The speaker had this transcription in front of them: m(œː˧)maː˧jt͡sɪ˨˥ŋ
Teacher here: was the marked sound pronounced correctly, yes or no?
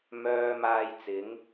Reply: yes